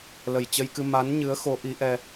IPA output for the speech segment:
l ə˨˩ j t͡ɕ ə˧ j k ɨ˧ m a˨˦ n ɲ ɨ˨˦ ə̯ x o˨˦ ʔ i˨˦ ʔ ɛ˧

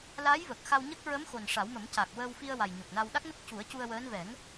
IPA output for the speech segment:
l a˧˥ j v əː˨˩ k̚ x a˧ w ɲ ə˦˥ k̚ ɹ ə˧˥ m x o˨˩ n ʂ a˨˩˦ w m ə˨˩˦ m c a˨˩ k̚ w əː˧ w f i˧ ə̯ w a˨˩ j ɲ o˨˩ k̚ n a˧ w ɗ a˦˥ k̚ n ə˦˥ k̚ c u˨˩˦ ə̯ c u˧ ə̯ w əː˧˥ n v ɛ˨˩˦ ŋ

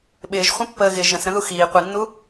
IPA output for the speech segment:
ɓ ɪː ʒ χʷ ə̃ pː əː ɣ ɪ ʒ ə̃ s ɾ ə̃ ð u x iː qʷ i nː u

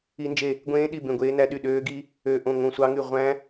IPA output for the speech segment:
i˦˥ n d͡ʒ e˦˨ | ɡʷ ẽː˦˥ ɗ i˦˨ b ẽ˦˨ ɡʷ eː˦˥ n æ˦˥ ɗ y˦˨ ɗ øː˦˥ ɡ i˦˥ | ø˦˨ ʔ õ˦˨ ŋ õ˦˨ sʷ ɑ˦˥ ŋ y˦˨ ʁʷ æ̃˦˥

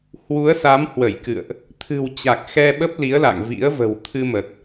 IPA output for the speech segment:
h w u˨˦ ə̯ s a˨˦ m h w ə˧˩ j k ɨ̰˧˨ ə̯ ʔ | t̪ʰ ɨ̤˨˩ w t͡ɕ a˨˩ k̚ x ɛ˧ ɓ ə˦˥ p̚ l i˨˦ ə̯ l a̰˧˨ ŋ v ḭ˧˥ ə̯ v ə̤˨˩ w t̪ʰ ɨ˧ m ə˨˩ t̚

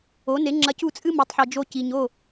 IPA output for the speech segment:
o˩˥ n e˩˥ ŋ͡ǁ ɐ˧ c u˥˩ t͡sʼ ɨ˥ m o˩˥ tˤ ħ i˩ d͡ʒ o˧ c i˩ ɲ o˥˩

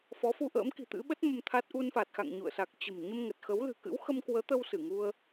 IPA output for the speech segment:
f ɔ˨˦ f u˧ ʔ ə̰ː˧˥ m k i̤˨˩ t̪ ɨ̰˧˥ ɓ ə˦˥ t̚ m ə˧ m t̪ʰ a˦˥ t̚ ʔ u˧ n f a˨˩ t̚ x a̰˧˨ ŋ ɲ ṵ˧˨ ə̯ s a˨˩ k̚ t͡ɕ ə̤˨˩ m ɲ ə˧ m ŋ ə˨˩ t̚ x ə˨˦ w l ɨ̤˨˩ k ɨ̰˧˥ w x ə˧ m k w əː˨˦ t̪ ə˧ w s ɨ˧˩ ŋ u˧ ə̯

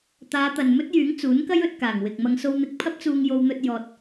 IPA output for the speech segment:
t̪ aː˨˧ t̪ ɐ˨ n m ɵ˥ t̚ j yː˨˥ ŋ t͡s uː˨˥ n k ɐ˥ j ɵ˧ t̚ k aː˨˩ ŋ w ɪ˨ k̚ m ɐ˧ ŋ s o˧ w n̪ ɪ˧ k̚ pʰ ɐ˥ p̚ t͡s uː˧ ŋ j o˧ w n̪ ɵ˧ t̚ j ɔː˨ t̚

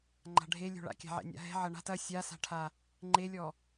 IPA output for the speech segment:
ŋ͡ǃ a̤ ɖʱ e lʲ o̤ ɭ a̰ kʲ a̤ ʕ ɛ̰ nʲ a̰ ɦ ɛ̤ ʕ ɐ ɳ a̤ t ɐ sʲ a s a̤ ʈʰ a | ŋ͡ǃ e lʲ ɔ

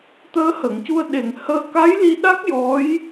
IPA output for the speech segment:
t̪ əː˧˥ h ə˨˩˨ ŋ c u˧ ə̯ ɗ e˨˩ ŋ h əː˧ k a˧˥ j l i˧ ɗ a˦˥ k̚ j ɔ˧˥ j

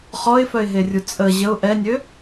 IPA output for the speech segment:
χ ɔ ɪ̯ f œ ɪ̯ ɦ e rʲ u t͡sʼ ə ʑ ə ʊ̯ ʔ ɛ nʲ ø

